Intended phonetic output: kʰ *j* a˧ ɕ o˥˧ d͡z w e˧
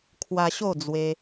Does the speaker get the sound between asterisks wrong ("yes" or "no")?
yes